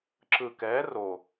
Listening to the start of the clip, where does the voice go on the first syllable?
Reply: low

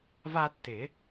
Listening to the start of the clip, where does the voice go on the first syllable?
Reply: high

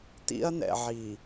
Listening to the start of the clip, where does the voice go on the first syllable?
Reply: high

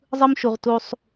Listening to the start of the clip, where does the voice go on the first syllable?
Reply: high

